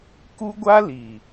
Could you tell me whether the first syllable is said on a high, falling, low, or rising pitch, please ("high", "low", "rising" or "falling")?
high